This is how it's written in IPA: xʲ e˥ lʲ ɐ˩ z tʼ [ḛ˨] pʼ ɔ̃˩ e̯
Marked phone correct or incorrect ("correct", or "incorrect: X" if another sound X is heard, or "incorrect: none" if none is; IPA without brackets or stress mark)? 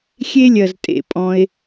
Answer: correct